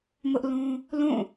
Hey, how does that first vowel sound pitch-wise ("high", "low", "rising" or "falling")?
high